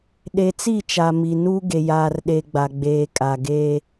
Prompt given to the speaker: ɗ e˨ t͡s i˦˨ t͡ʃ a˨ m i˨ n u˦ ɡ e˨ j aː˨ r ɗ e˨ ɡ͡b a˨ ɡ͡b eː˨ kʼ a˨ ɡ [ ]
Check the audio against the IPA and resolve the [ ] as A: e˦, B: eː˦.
B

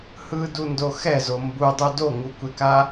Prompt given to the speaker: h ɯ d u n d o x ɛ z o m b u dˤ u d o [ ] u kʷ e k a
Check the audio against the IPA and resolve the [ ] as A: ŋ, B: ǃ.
A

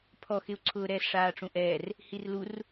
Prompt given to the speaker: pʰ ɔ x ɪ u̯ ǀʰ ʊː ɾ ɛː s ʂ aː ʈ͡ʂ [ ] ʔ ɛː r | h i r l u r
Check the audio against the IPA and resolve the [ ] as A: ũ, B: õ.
A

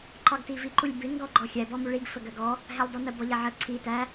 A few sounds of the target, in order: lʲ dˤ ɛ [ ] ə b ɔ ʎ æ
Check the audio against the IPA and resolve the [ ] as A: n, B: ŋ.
A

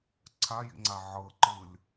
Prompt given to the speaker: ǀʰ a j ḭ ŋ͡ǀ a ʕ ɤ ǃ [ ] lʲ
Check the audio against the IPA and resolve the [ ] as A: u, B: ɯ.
B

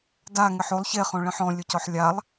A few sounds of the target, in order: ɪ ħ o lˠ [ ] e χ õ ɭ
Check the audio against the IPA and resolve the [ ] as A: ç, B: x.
A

